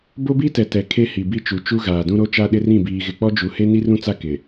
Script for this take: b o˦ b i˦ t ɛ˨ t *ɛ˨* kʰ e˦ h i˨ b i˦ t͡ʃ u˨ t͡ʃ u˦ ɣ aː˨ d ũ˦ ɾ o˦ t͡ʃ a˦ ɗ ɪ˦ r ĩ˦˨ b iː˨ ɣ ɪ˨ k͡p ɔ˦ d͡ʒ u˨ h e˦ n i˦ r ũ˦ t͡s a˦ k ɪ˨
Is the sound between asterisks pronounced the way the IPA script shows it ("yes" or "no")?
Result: yes